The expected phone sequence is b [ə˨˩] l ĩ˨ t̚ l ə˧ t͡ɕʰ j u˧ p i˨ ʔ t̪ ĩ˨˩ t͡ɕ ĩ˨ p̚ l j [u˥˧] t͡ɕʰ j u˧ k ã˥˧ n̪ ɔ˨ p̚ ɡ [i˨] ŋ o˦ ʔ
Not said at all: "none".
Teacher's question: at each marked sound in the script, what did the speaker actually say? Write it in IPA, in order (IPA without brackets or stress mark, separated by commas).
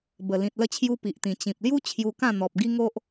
ə˨˩, u˦, i˦